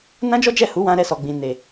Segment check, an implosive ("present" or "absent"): absent